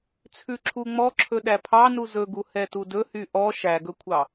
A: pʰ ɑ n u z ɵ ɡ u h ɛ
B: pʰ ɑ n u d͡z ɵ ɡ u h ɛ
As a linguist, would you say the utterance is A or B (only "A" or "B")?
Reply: A